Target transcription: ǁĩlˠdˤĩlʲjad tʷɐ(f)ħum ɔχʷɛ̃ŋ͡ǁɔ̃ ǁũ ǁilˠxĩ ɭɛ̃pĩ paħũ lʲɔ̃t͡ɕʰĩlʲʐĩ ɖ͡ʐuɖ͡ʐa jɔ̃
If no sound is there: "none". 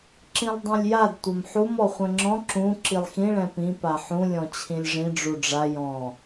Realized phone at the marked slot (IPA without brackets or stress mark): m